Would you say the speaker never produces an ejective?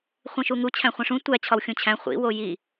yes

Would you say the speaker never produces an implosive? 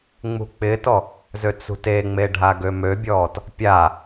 yes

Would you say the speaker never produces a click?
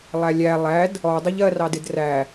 yes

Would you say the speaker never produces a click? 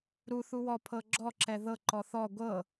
no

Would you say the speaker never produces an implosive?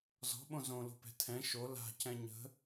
no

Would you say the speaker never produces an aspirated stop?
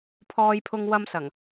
no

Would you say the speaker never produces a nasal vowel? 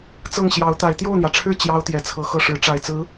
yes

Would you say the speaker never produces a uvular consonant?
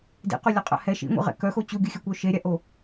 no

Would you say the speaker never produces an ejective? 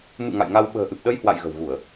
yes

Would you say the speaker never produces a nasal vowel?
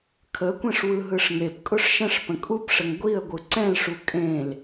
no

